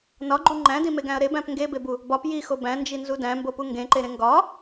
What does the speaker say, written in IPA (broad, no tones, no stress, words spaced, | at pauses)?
nɒɡ͡ǃu ŋ͡ǃæ̃dĩmeɡæ̃ɐ̯ ɾebæ̃p ŋɡebebu | bɒp jixo bæ̃nd͡ʒinzu dæ̃mbopu ŋɡẽǃeɾẽ ŋɡɒ